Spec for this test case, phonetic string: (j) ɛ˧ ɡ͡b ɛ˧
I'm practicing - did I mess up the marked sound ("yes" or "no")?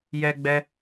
no